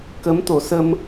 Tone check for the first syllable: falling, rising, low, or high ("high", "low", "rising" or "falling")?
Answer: rising